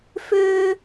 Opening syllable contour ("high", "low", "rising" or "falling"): high